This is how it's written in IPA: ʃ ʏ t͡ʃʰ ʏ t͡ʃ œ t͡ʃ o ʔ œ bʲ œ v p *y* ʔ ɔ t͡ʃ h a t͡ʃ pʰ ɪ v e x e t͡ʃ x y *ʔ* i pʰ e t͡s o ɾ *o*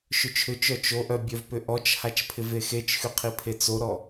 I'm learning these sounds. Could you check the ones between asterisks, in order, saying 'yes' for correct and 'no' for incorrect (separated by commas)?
no, no, no